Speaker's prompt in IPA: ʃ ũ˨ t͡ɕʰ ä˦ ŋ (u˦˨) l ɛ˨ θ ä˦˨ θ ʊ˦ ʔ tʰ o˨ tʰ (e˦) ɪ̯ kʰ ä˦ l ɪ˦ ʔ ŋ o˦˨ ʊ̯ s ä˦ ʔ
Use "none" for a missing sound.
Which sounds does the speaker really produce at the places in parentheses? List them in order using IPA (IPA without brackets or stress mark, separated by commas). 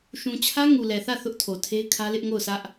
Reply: u˨, e˦